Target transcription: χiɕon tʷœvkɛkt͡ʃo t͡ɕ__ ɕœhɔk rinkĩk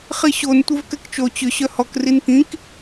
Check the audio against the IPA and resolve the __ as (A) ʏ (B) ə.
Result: A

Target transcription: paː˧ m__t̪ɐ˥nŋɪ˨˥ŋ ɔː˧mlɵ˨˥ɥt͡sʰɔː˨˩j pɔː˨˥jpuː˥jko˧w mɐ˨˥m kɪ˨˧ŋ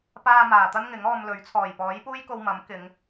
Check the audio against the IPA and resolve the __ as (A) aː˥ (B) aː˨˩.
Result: B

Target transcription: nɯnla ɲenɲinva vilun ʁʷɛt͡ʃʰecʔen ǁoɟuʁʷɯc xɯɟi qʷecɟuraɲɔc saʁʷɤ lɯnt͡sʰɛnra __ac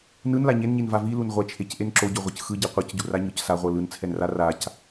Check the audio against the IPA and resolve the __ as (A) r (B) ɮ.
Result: A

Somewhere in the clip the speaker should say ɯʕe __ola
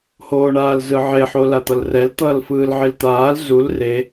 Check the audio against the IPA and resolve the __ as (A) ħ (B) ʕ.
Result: A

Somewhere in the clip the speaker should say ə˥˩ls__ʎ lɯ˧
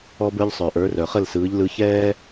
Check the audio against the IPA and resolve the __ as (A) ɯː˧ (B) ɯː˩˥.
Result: B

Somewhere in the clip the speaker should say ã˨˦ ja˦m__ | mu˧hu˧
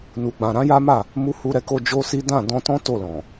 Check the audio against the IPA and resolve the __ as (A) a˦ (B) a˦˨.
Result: B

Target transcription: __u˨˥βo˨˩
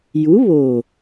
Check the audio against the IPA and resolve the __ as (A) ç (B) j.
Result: B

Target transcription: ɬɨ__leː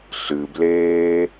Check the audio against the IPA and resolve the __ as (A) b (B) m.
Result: A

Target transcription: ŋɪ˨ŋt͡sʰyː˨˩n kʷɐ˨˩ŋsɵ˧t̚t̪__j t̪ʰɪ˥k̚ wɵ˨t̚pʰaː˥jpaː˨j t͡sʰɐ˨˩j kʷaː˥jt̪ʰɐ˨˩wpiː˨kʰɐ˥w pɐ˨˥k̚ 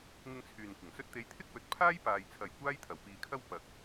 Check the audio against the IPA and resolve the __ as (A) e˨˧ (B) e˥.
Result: A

